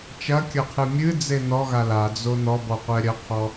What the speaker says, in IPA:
t͡ʃ ɐ kʲ ɐ qʰ ɨ mʲ ɨ d͡z e n ɔ ɣ a l a d͡z o n ɔ b ɔ qʷ ɛ ɾʲ ɐ qʰ ɔ

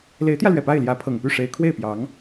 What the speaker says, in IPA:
l e˧˥ ɪ̯ t̪ j ä˧ l ɥ ɛ˨˩ p a˥˩ ɪ̯ l j ä˧˥ pʰ ɤ˨˩ ŋ p y˥˩ ʂ e˧˥ ɪ̯ kʰ w e˥˩ ɪ̯ p j ɑ˧˥ ŋ

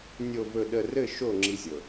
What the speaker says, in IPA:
nʲ o˨ v ɵ˨ ɗ ə˨ r ɘ˦˨ ʃ o˦˨ ŋ͡ǁ i˦ zʲ ɤ˨

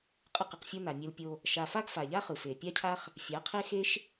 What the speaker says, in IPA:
qʼ ɯ˦˨ q ɯ˧ q fʲ o˦ n a˨ mʲ ɯ˧ l pʲ o˧ | ʃ a˧ f a˦ ɡ f a˨ ʎ a˦ χ ɯ˨ f e˨ pʲ a˦ cʰ a˦ χ | fʲ a˨˦ qʰ e˦ x e˦ ʃ

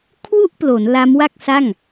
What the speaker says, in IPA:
kʰ w u˥˩ ʔ p l o˩˦ n l a˦˥ m w a˥˩ k̚ s a˥˩ ŋ

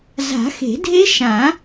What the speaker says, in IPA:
z a̤˨˩˦ x e̤˨˩˦ dʱ e˦˥ ʃ ã˨˩˦

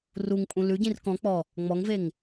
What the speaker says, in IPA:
r u ŋ pʼ ũ l ʉ ɟ ĩ r k ɔ̃ k͡p ɔ | ŋ͡m ɔ ŋ v e ŋ

